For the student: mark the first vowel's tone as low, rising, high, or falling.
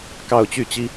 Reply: falling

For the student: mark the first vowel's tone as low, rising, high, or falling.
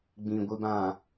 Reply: low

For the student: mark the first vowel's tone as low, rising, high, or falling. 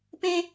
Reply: high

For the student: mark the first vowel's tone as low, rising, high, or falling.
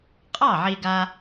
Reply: falling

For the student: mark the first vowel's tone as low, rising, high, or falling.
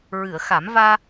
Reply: low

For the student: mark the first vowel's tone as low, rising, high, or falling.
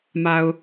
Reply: low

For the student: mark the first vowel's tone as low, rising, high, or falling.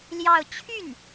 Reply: falling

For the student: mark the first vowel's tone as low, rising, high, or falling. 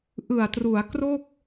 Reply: low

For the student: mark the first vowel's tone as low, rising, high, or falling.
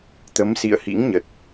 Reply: rising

